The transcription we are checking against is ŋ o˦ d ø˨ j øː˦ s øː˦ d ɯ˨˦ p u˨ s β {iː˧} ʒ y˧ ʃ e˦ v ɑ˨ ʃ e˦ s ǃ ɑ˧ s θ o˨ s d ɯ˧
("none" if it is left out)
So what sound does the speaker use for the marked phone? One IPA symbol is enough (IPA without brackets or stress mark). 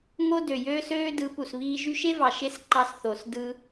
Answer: iː˧